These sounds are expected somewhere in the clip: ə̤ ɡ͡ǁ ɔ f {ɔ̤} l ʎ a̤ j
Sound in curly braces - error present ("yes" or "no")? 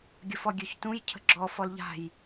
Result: yes